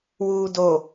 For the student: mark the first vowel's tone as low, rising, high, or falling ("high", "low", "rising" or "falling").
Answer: low